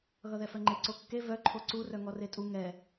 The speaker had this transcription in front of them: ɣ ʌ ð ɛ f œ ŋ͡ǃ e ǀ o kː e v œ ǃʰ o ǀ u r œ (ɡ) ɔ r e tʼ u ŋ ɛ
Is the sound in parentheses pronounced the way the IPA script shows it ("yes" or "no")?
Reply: no